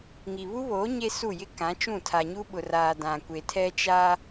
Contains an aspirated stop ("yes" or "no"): yes